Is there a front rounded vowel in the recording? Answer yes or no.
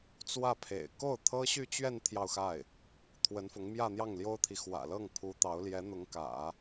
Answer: yes